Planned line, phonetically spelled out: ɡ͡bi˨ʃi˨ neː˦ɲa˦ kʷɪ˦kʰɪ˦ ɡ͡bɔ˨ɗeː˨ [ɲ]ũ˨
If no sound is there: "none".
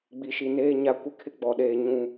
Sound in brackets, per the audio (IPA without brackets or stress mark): ɲ